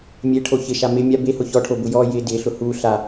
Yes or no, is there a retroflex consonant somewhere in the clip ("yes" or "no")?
yes